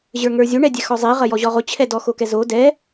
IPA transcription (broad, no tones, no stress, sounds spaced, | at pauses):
ʑ ə˞ ŋ ə˞ zʲ o ɳ ɛ dʲ ɛ x ɔ zˤ i ʁ ɐ j ɔ ʑ ɔ ʁ o t͡ɕʰ ɛ d ɔ x o k ɛ z o d ɛ